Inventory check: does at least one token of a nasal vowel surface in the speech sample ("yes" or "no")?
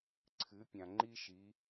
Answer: yes